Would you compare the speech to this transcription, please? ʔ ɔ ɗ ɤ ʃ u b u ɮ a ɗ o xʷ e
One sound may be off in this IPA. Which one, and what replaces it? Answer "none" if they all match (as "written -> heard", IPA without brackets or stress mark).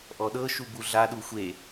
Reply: o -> u